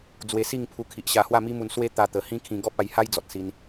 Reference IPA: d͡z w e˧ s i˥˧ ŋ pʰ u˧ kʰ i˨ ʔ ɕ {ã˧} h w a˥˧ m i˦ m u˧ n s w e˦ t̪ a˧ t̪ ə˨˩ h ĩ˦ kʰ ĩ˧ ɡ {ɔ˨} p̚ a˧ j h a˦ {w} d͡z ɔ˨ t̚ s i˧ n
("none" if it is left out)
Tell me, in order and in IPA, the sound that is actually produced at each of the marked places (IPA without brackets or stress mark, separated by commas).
a˧, ɔ˦, j